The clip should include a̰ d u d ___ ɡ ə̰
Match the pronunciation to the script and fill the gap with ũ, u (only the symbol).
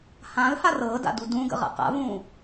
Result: ũ